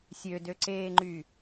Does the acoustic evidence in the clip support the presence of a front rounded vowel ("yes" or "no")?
yes